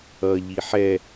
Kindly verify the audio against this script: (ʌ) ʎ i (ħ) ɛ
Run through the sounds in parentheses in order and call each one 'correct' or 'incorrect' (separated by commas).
correct, correct